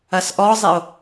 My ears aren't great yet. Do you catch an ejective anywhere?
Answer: no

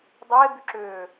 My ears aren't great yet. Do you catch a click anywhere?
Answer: yes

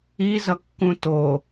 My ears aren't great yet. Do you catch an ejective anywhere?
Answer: no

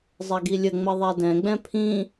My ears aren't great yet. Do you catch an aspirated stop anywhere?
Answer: yes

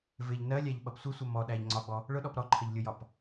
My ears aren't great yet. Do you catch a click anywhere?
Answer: yes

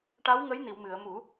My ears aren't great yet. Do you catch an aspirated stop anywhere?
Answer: no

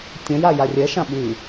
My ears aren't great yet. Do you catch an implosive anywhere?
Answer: yes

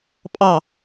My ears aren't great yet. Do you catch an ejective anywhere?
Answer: yes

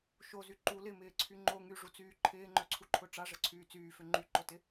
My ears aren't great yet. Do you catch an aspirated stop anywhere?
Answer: yes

